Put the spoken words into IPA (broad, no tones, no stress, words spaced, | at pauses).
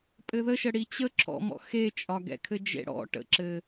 pʼɘðəʃə ɽit͡ɕə ǁʰɔ̰mɔ̰ xet͡ʃʼɒ ɡɛ̰kʰɘd͡ʒḛɽɔ̰ ʈə̰ǁɘ